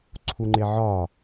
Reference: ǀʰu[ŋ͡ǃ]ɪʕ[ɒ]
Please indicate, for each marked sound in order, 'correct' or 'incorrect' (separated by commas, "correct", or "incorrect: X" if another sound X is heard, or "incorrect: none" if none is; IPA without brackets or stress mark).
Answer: correct, correct